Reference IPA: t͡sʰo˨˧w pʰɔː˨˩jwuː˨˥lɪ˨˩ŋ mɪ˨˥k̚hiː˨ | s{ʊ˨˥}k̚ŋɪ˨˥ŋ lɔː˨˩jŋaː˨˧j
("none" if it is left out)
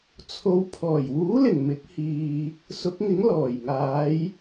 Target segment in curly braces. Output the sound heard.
ʊ˨˥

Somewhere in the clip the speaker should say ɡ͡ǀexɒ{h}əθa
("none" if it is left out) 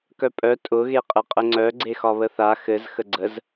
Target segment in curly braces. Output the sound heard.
β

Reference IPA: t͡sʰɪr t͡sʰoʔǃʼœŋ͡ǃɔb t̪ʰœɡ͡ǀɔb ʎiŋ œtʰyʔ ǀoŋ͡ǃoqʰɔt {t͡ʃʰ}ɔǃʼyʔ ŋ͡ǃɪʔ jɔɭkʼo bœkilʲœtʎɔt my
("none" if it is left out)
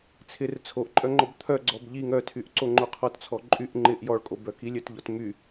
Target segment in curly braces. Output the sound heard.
t͡sʰ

